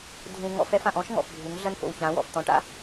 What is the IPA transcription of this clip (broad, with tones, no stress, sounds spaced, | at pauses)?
dʱ ũ˨ ŋ ɔ̰˦ f ɛ˦ f ã˨ ʔ ɔ̃˦ ʃ ŋ ɔ̰˨ f bʱ u˨˦ ŋ ɮ ɐ˦ n f o̰˨ w ç ã˨˦ w ɔ̰˨ f t̪ ɔ̃˨ ʈ a̰˦